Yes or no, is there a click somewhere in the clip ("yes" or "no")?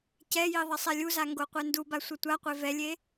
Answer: no